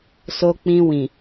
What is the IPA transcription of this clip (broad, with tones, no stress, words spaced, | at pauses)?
so˧k͡pĩ˧wĩ˨